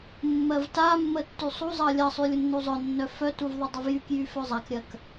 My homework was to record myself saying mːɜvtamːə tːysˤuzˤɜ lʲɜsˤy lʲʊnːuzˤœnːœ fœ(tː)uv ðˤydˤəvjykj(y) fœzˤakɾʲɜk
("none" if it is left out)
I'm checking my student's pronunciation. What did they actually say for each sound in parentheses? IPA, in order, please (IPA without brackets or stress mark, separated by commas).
t, y